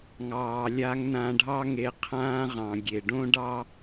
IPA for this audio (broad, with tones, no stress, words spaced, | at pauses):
ŋɑː˨lʲa˧ŋnã˧ɖʱɑ˦ ŋe˧ qʰãː˦ʁɑ̃˨ɡʲe˨ ɖõ˦ɖɑ˦